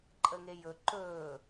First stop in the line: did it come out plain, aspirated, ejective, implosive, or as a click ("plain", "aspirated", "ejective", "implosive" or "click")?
click